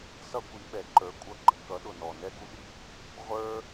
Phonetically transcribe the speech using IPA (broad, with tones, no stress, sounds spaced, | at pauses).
s ʌ˥ kʷ i˨˥ ɓ ɛ˨˥ ǃ ə˞˨˥ kʷʼ ʌ˨˥ ɡ͡ǃ ə˨˩ k ʌ˨˥ ɗ ʊ˨˩ n ɔ˨˩ n ɛ˥ ɡ u˥ ɗ i˥ | ʁʷ ə˞˥